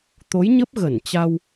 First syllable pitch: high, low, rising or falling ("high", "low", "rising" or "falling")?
rising